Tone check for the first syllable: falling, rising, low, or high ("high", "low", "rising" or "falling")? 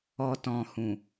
low